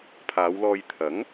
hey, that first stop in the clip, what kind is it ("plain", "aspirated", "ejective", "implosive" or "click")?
aspirated